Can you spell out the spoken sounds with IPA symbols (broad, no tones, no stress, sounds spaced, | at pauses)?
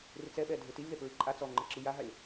r ɪ t͡s ɛ ɓ ɛ dʱ e t i lʲ ð ɛ p ɹ i ǃʼ a t͡s ɔ ŋ͡ǃ e ǁ i j a ɦ a lʲ